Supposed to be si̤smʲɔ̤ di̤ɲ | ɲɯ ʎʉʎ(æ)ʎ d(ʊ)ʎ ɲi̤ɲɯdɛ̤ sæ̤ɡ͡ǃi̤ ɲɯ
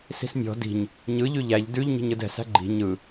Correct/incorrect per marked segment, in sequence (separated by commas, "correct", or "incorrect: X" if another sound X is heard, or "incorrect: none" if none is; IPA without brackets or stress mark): correct, incorrect: ʉ